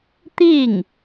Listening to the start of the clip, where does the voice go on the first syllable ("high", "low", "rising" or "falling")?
falling